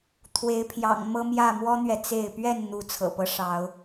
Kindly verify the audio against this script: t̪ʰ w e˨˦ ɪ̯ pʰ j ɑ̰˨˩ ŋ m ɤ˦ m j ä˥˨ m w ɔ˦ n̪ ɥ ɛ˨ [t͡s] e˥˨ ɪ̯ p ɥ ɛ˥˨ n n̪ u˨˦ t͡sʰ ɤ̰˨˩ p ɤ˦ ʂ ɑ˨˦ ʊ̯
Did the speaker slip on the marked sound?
no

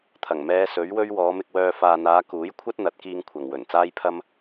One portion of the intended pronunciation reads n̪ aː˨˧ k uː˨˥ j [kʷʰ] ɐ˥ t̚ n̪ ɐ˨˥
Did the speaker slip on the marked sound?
no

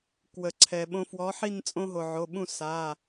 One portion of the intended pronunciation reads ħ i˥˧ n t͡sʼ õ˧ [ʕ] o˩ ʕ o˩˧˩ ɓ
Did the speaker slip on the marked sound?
yes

